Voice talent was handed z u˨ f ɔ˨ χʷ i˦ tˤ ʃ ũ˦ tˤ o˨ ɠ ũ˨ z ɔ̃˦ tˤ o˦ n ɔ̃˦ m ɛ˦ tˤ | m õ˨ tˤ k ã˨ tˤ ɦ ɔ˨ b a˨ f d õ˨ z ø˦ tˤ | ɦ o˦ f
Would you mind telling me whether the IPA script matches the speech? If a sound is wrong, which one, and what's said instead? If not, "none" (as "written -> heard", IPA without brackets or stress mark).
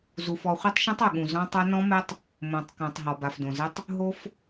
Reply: ø˦ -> ɘ˦